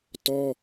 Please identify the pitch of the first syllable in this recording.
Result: high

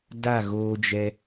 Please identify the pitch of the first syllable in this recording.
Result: falling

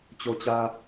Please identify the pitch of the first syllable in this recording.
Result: high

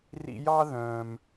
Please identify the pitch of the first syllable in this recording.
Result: high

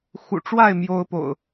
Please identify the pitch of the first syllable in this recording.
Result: low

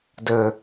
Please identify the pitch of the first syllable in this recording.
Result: low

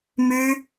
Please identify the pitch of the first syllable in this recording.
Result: high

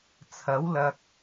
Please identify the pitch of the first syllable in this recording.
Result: rising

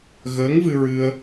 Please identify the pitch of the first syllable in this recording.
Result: rising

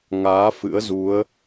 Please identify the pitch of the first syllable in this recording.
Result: rising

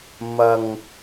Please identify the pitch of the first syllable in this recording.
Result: low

